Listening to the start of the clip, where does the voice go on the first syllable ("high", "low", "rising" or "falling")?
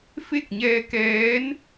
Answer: falling